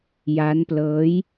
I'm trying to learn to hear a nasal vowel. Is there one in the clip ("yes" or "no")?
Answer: no